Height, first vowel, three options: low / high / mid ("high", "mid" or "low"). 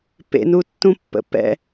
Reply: mid